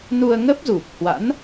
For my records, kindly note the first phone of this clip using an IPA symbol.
n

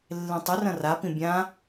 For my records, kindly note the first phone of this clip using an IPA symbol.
lː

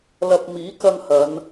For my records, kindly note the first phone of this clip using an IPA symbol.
l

